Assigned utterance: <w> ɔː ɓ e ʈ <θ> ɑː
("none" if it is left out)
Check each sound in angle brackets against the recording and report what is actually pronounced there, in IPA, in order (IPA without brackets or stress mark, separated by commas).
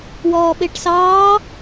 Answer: w, s